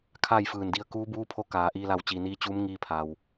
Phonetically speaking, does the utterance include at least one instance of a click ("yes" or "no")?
no